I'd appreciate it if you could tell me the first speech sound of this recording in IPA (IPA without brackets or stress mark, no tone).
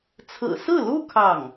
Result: t͡sʰ